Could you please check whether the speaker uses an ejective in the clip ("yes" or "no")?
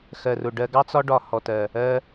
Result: no